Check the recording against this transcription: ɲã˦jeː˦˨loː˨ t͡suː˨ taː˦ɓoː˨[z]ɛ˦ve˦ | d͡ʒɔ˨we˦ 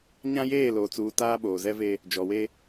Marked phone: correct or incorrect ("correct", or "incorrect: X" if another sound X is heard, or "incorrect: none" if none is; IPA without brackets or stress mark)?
correct